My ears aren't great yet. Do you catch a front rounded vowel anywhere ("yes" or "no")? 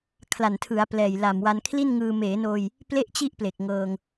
no